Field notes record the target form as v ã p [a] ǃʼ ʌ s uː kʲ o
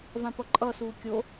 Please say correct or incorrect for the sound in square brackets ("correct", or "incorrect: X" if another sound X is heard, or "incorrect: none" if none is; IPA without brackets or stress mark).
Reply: incorrect: ʌ